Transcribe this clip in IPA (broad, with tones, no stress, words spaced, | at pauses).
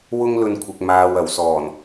wʊ˥ŋlɵ˧nkʷʰɪ˨k̚maː˨w ɐ˨˩wsɔː˨˩n